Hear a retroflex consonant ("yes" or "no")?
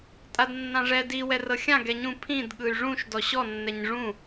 yes